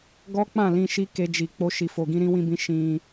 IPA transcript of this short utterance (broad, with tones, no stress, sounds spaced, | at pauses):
ɡ ɔ˦ k͡p ã˦˨ l ĩ˧ ʃ i˦ k e˦ d͡ʒ i˧ k͡p o˦ ʃ i˧ f o˧ ɡ ĩ˦ ɾ ĩ˦ w ĩ˦ b ĩ˦ ʃ ĩ˧